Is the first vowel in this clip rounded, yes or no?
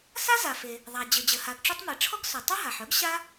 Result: no